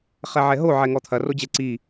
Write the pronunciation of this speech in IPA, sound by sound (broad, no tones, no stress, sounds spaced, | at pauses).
χ ɛ ʕ ɛ ɦ o ʕ ɛ ŋ ɔ t̪ʰ ɐ r o d͡ʑ ɛ ǀ i